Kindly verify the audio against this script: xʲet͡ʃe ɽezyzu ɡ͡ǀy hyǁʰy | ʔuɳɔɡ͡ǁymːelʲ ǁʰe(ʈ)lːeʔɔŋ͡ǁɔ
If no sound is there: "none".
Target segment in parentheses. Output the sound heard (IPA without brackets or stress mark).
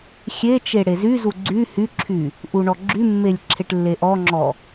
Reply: ʈ